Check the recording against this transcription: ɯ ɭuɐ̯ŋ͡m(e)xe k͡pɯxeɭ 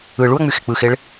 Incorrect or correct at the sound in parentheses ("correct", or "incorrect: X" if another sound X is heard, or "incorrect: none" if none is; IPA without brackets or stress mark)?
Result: incorrect: y